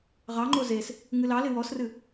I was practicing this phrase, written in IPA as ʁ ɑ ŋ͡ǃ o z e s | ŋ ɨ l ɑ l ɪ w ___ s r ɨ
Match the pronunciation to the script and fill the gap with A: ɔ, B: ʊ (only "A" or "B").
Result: A